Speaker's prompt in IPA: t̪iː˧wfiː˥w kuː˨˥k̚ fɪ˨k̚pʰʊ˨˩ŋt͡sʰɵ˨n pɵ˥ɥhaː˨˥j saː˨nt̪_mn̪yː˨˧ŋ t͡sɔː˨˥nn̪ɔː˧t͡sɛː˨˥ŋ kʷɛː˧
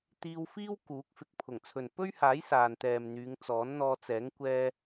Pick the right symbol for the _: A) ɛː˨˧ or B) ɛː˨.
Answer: B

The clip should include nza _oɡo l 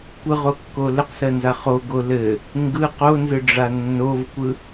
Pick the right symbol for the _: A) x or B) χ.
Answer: B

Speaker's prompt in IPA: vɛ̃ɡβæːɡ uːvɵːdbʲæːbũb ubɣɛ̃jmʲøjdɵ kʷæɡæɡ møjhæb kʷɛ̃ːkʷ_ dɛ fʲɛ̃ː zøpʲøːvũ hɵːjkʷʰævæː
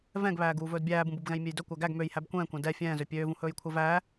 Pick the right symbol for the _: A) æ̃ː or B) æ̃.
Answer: B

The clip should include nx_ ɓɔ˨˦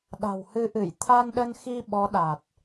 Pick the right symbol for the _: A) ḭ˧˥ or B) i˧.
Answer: B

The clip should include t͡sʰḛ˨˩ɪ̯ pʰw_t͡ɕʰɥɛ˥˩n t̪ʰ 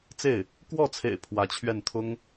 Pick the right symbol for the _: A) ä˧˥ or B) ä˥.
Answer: A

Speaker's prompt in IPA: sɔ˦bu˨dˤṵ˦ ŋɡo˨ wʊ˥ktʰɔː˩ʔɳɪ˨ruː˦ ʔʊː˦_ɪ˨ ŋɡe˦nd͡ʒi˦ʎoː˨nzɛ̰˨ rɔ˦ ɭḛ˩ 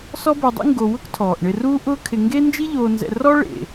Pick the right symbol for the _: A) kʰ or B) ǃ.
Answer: A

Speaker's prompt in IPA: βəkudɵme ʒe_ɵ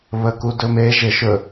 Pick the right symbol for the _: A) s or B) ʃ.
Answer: B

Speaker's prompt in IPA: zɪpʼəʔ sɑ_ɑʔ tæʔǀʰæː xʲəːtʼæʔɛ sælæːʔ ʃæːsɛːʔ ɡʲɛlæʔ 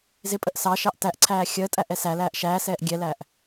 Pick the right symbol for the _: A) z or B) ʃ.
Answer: B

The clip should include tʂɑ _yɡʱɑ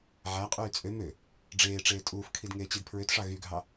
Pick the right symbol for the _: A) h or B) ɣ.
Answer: B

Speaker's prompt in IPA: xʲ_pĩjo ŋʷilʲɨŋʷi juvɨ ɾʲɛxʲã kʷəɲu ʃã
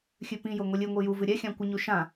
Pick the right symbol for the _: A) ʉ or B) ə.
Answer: A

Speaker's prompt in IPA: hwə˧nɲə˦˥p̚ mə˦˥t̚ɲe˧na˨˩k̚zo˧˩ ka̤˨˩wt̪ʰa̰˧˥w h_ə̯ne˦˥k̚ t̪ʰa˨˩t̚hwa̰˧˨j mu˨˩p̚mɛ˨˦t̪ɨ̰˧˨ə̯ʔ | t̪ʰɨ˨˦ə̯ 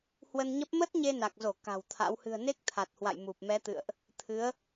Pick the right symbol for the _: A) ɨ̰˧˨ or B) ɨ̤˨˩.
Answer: B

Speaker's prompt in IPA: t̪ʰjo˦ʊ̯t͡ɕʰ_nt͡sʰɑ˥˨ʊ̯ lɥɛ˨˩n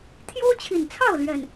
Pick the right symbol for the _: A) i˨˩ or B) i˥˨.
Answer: A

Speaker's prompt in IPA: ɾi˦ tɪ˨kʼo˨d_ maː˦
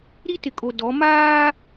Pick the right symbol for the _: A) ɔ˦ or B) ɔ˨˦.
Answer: B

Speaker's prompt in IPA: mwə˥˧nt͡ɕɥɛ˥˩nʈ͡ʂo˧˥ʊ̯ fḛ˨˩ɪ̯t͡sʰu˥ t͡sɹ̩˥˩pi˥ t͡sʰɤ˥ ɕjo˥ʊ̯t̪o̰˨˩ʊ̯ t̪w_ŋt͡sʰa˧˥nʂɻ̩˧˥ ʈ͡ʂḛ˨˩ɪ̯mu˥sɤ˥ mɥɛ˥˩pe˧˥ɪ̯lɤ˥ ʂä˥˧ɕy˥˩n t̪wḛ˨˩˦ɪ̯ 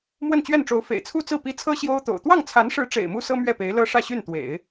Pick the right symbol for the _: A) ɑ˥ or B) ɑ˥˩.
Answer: B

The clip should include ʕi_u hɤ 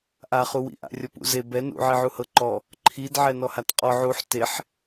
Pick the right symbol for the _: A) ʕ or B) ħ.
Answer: A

